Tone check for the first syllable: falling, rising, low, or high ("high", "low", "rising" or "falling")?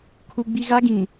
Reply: high